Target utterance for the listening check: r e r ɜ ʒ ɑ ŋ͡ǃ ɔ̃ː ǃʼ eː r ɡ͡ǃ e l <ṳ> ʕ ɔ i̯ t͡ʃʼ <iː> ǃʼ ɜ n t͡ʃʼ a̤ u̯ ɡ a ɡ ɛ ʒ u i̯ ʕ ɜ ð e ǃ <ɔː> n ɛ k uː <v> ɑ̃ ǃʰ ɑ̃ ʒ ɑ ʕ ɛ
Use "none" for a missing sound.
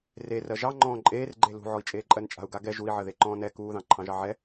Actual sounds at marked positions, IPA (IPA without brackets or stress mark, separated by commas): ṳ, eː, ɔ̃ː, ð